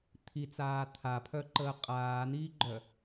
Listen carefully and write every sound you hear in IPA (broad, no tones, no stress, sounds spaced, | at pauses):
t̪ʰ i t͡s aː t̪ʰ a pʰ œ ǃ əː qʼ aː n̪ iː ɡ͡ǃ œ